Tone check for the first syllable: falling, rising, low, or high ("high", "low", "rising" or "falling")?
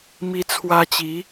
high